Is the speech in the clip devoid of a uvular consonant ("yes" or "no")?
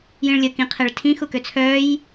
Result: no